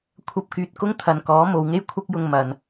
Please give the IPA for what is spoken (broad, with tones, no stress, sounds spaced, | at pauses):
kʷʰ ɐ˧ p̚ k yː˨ t̚ k ʊ˥ ŋ t̪ʰ ɐ˨ n k ɔː˨˥ m o˨˧ w ŋ e˥ j kʷʰ ɐ˥ k̚ j ʊ˧ ŋ m ɐ˨ n